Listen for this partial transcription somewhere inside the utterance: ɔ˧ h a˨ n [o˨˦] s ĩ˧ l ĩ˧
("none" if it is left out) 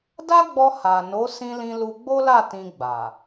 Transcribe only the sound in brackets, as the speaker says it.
o˨˦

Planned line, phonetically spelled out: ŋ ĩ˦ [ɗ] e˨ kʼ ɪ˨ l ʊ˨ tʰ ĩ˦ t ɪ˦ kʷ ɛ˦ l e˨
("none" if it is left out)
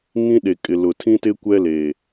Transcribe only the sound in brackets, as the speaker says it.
ɗ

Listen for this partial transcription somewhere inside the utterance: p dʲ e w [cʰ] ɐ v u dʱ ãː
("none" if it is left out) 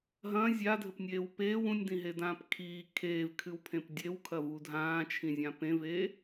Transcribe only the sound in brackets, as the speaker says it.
kʰ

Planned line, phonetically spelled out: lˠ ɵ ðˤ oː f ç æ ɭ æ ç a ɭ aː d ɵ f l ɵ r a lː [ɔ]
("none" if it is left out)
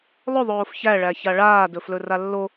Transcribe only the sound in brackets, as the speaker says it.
o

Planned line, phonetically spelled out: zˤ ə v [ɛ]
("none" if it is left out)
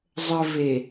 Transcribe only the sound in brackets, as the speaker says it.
e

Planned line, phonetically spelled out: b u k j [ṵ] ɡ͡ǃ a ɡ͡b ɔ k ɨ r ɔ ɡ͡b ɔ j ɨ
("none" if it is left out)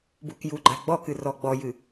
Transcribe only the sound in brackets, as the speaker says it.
u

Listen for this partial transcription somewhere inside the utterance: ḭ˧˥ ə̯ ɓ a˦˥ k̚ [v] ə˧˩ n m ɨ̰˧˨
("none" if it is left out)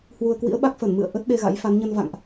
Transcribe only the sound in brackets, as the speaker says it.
f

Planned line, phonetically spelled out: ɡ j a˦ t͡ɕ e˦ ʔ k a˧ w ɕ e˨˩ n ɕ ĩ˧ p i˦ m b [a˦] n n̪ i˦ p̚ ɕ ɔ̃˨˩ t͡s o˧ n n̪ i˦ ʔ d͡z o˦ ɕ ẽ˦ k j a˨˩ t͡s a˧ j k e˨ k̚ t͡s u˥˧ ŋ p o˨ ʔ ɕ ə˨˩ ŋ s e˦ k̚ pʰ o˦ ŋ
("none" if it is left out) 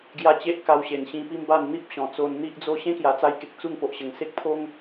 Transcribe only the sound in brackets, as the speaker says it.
a˥˧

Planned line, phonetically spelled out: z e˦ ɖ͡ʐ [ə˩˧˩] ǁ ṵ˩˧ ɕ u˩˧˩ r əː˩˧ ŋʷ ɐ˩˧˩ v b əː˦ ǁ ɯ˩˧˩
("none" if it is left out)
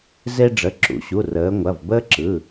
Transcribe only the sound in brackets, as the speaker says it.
ə˩˧˩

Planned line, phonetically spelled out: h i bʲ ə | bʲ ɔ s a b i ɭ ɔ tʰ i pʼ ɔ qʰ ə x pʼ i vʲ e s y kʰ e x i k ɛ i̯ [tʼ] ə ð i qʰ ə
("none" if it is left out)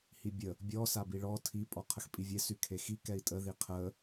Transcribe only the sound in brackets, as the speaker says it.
tʼ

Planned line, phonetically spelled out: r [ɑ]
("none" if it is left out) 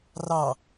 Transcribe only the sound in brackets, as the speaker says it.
ɑ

